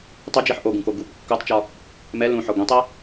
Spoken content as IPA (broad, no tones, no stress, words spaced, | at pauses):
tˤɵd͡ʒiħ ʔoɡũko ɡup kːotˤt͡ʃɒ | mɛ lũħɒ ɡʷĩtˤɛ